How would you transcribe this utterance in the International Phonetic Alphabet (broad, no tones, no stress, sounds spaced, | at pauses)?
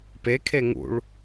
p e kʰ e ŋ ṵ ɭ